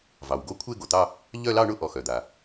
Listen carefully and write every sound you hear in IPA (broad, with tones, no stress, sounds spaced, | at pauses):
v ɑ˩ w ɡ o˥˧ kʷʰ e˥˧ ɡ o˩ t̪ ɑ˥˧ | ʎ œ˥˧ l ɑ˥˧ ɳ ʊ˥˧ ʔ ɔ˩ x œ˩ d̪ a˩